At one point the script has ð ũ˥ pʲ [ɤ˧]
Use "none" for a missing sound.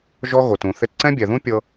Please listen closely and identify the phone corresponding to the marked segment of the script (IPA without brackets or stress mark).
ɤ˧